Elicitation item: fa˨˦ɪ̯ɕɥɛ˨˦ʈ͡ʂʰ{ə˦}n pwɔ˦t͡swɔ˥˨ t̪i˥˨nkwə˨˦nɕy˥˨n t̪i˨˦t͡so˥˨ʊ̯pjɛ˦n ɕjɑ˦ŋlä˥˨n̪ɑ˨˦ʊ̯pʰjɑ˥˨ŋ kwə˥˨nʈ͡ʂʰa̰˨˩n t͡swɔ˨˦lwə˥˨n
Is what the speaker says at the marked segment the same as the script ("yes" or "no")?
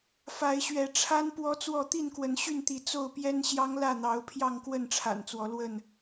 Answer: no